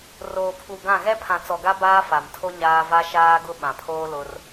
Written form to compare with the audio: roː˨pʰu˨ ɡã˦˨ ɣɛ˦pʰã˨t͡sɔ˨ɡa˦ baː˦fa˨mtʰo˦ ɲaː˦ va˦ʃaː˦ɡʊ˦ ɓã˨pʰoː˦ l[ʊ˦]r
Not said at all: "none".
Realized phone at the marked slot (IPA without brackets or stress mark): ʊ˦